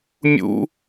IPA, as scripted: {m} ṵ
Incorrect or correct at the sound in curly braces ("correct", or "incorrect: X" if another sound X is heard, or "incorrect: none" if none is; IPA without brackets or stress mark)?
incorrect: mʲ